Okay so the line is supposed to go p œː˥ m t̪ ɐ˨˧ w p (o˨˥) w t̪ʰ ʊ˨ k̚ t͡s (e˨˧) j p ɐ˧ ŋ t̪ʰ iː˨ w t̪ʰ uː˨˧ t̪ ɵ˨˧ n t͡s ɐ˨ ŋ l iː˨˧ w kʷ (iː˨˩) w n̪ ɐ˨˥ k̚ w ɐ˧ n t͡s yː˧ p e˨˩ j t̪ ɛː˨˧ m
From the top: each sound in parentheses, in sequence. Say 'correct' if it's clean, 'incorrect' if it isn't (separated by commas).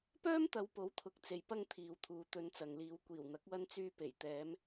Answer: correct, incorrect, correct